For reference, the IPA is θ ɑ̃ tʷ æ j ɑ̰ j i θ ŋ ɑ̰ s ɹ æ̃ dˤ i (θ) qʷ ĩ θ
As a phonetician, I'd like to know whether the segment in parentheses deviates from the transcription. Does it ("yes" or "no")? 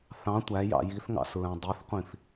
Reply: no